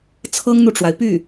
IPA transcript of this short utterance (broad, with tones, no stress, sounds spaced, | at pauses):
t͡sʰ ɤ˥ ŋ n̪ u˨ ʈ͡ʂ w a˩ ɪ̯ p y˥˩